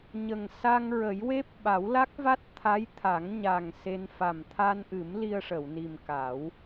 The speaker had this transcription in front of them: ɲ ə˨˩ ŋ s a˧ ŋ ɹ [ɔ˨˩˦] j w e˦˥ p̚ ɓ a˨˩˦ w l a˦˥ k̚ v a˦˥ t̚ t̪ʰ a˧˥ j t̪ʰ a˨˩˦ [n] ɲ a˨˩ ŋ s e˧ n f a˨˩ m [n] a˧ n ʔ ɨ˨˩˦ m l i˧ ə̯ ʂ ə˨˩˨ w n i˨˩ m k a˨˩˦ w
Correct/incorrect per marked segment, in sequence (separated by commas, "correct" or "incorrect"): incorrect, incorrect, incorrect